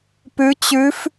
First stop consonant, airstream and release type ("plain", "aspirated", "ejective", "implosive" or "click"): plain